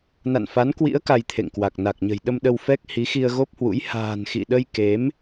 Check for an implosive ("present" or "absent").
present